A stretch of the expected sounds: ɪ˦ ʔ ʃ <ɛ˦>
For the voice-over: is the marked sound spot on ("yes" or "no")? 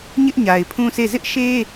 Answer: no